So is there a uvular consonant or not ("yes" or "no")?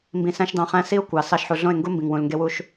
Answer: yes